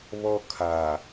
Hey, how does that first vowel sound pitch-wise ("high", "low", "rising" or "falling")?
high